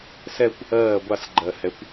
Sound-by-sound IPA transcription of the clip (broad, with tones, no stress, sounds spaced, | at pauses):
s ɛ˥˧ kʷ | ɜː˥˩ ɡʷ a˥˩ s ɡ͡ǃ ɜ˨˩ h ɛ˨˦ kʷ